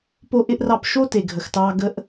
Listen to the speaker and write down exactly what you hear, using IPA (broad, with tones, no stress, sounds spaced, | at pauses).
p o˦ ʔ ɪ˦ ʔ r ɑ˦˨ p ʃ o˦ t e˨ ɡʱ ə˨ x t ɑ˦ ɡ ə˦ ʔ